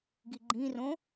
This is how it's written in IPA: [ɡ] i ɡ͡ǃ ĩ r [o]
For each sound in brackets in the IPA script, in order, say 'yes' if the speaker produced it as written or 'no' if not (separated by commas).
yes, no